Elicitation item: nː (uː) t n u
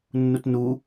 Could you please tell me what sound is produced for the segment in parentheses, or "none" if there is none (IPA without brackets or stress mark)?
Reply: u